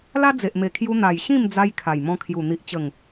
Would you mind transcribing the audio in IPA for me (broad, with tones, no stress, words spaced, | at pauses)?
la˦d͡ze˨ʔme˨˩kʰju˧ n̪a˨˩j ɕĩ˥˧md͡za˧j kʰa˨˩jmɔ̃˧kʰju˨˩ n̪i˨ʔt͡ɕə˨˩ŋ